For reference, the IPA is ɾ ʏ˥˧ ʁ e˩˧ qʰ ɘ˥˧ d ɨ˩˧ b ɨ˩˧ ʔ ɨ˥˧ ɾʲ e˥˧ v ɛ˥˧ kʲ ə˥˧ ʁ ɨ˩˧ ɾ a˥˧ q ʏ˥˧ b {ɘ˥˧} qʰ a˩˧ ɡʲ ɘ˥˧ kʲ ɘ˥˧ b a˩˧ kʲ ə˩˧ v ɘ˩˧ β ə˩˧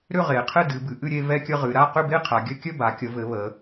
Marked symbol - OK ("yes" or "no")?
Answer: no